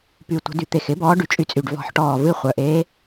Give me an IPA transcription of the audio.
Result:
p y˨˩ tʷ ə̤˨˩˦ d y˨˩ t̪ e˨˩ x ɪ˧˥ b ɔː˧˥ ɖ y˨˩ t͡ʃʼ y˧˥ t͡sʼ y˨˩ ɖ v ɔ̤˨˩˦ ħ ʈ ɔː˨˩ v ɨ˧˥ χʷ œ˨˩ ʔ eː˧˥

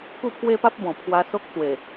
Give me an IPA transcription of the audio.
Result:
k u˥˧ pʰ w e˦ p a˦ p̚ b ɔ̃˨˩ pʰ w a˧ s o˦ k̚ t͡s w e˨˩

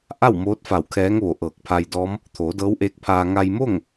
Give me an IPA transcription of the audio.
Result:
ʔ a˥˨ w m oː˧˥ t̚ f a˧˩ w kʰ ɛː˧˥ ŋ ʋ o˧˩ ʔ ɤː˧˩ k̚ pʰ a˧ j d ɔː˧˥ m | t̪ʰ oː˩˧ d ɤː˧˥ w ʔ eː˧˥ k̚ pʰ aː˧ ŋ a˧ j m o˥˨ ŋ

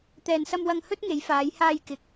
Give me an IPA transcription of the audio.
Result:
t̪ ɛː˨ n s ɐ˧ m w ɐ˧ ŋ h ɵ˥ t̚ ŋ e˨˧ j f aː˨˧ j h aː˧ j k ɪ˨˥ k̚

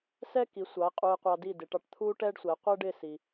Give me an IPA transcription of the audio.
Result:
s ɛ˥ k i˩˥ sʷ ɑ˩˥ e̯ qʼ u˧ e̯ qʷ ɑ˧ d i˥˩ d ɪ˩˥ ʈ ɑ˧ ʈ t̪ʰ u˥ ʈ ɛ˥ ɖ sʷ ɛ˩˥ qʷ ɛ˥ ɖ ɪ˥˩ s i˩

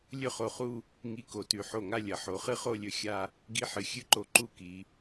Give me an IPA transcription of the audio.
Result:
lʲ ɵ˥˧ χ o˧˩ χ u˥˧ | ŋ i˧ k o˩˧ t ʉ˩˧ ħ o˧˩ ŋ a˥˧ lʲ ɐ˩˧ ħ o˩˧ χ ɨ˥ χ o˥˧ lʲ ɵ˧ xʲ a˥˧ | ɡ i˧ ħ ɨ˩˧ xʲ ɨ˥ ǃ o˧˩ ǃ u˥˧ k i˩˧

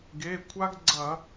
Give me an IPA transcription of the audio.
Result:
ɡ e˩˧˩ kʷʰ a˦ ɡ ɡ͡ǀ ɐ˧˩˧

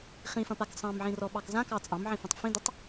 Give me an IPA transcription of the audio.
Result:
χ ĩ f ɐ̃ p a k sˤ ɑ̃ m ʕ ĩ r ɔ ɓ ɑ k z ã k ɑ t͡sʼ ɑ̃ m ʕ ĩ f ĩ tˤ f ĩ d ə tˤ

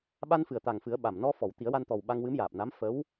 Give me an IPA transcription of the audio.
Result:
ɓ a˧ n f ɨ˨˩ ə̯ t̪ a˨˩ ŋ f ɨ˨˩˦ ə̯ ɓ a˨˩ m n ɔ˧ f ɔ˨˩˨ w t̪ i˨˩˦ ə̯ w a˧ n t̪ ɔ˨˩ w ɓ a˧ ŋ w ɨ˧˥ m j aː˨˩ p̚ n a˧˥ m f ə˧˥ w

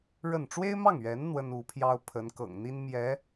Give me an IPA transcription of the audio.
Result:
ɻ ə˥˩ n ʈ͡ʂ w e˥ ɪ̯ m ɑ˥˩ ŋ ɥ ɛ˧˥ n n̪ w ə˥ n u˧˥ pʰ j ɑ˥ ʊ̯ pʰ ə˧˥ n k ɤ̰˨˩ ŋ n̪ i˥ n m j ɛ˧˥

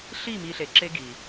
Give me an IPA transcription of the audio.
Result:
ɬ i˦˨ m i˨ ɬ e˨ ǁ e˦ ɡ i˨

